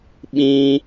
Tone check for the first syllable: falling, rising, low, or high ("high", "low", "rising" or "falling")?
high